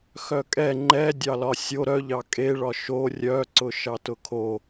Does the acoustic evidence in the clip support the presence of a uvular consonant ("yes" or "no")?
no